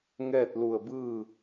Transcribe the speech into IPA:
ŋ ɛː˥˨ t̚ l u˧˩ ə̯ b ɯː˥˨

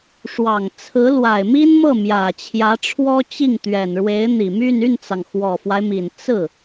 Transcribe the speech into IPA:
ʂ w ɑ˨˩ ŋ t͡sʰ ɹ̩˧˥ l w a˨˩ ɪ̯ m i˥ n m ɤ˥˩ m j ä˨˩ t͡ɕʰ j ä˧˥ ʈ͡ʂʰ w ɔ˥ t͡ɕ i˥˩ ŋ t̪ ɥ ɛ˨˩ n ɻ w e˧˥ ɪ̯ n̪ i˨˩ m y˥˧ n y˥˩ n t͡s ɑ˩ ŋ x w ɔ˨˩ f w a˦ ɪ̯ m i˨˩ n t͡s ɹ̩˥˩

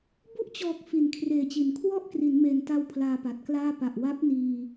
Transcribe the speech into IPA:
b u˥˩ ʔ t͡ɕ ɔː˨˩ k̚ f i˨˩ n kʰ r eː˨˩ t͡ɕ i˩˦ n kʰ w ɔ˥˩ ʔ k r i˩˦ n m eː˨˩ n t a˧ w pʰ l aː˧ p a˨˩ t̚ k l aː˥˩ p a˨˩ ʔ w a˦˥ p̚ n iː˧

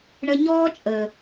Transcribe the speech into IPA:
ɳ ə˧ ɲ ɔː˦ t͡ʃʼ ə˨

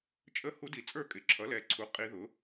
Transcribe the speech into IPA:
t͡ʃʼ ə˧˥ h u˧˥ d i˨˩ t͡sʼ ə˞˥˧ kʼ ɪ˨˩ ǁʰ ʌ˩˥ l ɛ˨˩ ǀʰ u˩˥ qʼ i˧˥ ð ʊ˩˥

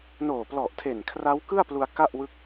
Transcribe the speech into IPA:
n oː˨˩ p l ɔ˨˩ ʔ tʰ e˨˩ n kʰ r a˦˥ w k ɯ˥˩ a̯ p l u˧ a̯ k a˥˩ ʔ w ɯ˦˥ k̚

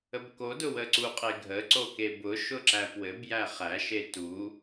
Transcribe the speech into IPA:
ə b k o d ʊ w ə ǀ u qʼ e ɡʱ ə ǀ o k e b ʊ ʃ ʊ ǁ æ p w ɘ b j æ χ æ ʃ e t u

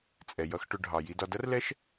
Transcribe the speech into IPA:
t͡sʼ ɛ˩ j ʌ˨ x ʈ ʊ˨ ɖʱ ɑ˩ j i˨ d ɒ˨ d ʌ˦ r l ɛ˦ ʃ

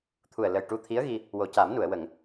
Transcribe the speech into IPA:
t̪ʰ u˨˩ ə̯ l ə˨˩ j ʈ u˧ t̪ʰ i˧˥ ə̯ ɣ i˧ | w o˨˩ c a˨˩˦ m n u˨˩˨ ə̯ w ə˨˩˨ ŋ

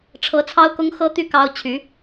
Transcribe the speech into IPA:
ʈ͡ʂʰ ɤ˧˥ t͡sʰ ɑ˥ ʊ̯ k ʊ˥ ŋ x ɤ˥ t̪ y˥˩ k ɑ˥ ʊ̯ t͡ɕʰ y˧˥

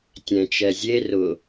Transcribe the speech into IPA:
tʲ ɛ̃ t͡ʃ ɛ zʲ e r ʊ

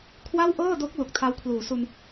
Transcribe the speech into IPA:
kʰ w a˥˩ w ʔ ɤː˥˩ d o˦˥ k̚ l u˨˩ k̚ tʰ a˦˥ w kʰ l uː˩˦ s u˧ n

